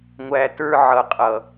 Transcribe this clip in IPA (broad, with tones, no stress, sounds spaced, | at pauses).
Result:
ŋʷ æ˨ t ə˞˦ ʕ ʌ˨ qʼ ʌ˨